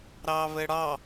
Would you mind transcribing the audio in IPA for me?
ɾɑβɘɽɑ

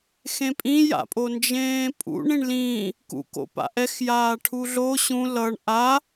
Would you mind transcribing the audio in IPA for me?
xẽpʼĩja̰pʼo nd͡ʒẽːpʼṵɳ ĩɳlĩː | kṵko̰pa̰ ʔɛxjaː ʈʰuɮo ɕũ lʌɳ ʔa

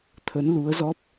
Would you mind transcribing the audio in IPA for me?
t̪ʰə˨˦nlu˨˦ə̯zɔ˦˥p̚

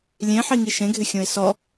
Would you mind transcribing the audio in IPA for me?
lʲẽħiŋi ʃẽɡʱɪxʲõɪ̯ sɔ

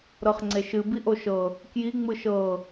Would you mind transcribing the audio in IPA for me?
ɾɤχŋ͡ǀeʃɨ biʔoʃɤ | kji ŋ͡mɯʃɤ

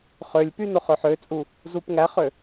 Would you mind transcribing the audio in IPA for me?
χølʲpy noχøħøt͡sʼu | zupŋæχø

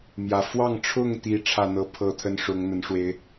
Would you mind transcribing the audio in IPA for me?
mjä˨˩fwɑ˥˨ŋ ʈ͡ʂʰʊ˥˨ŋt̪i˨˦ ʈ͡ʂʰä˥˨n̪ɤ˥˨pʰɤ˥˨ t̪ʰə˦nʂʊ˨˦ŋn̪ə˨˦nʂwe˦ɪ̯

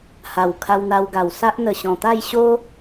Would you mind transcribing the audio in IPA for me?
ha˨˩wkʰa˧wn̪a˧wɡa˨˩w sa˦ʔ n̪ə˨˩ɕɔ̃˨˩t̪a˥˧j ɕo˦

